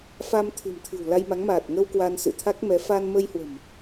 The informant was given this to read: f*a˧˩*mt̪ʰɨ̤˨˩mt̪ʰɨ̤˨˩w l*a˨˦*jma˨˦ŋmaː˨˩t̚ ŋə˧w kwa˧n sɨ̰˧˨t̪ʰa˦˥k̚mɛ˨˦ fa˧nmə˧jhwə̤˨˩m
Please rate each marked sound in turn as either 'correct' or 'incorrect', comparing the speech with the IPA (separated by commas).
incorrect, incorrect